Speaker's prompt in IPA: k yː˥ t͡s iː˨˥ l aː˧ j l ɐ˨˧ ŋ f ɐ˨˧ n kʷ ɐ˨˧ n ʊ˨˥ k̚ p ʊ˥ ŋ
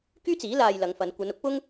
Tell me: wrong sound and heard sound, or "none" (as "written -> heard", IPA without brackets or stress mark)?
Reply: none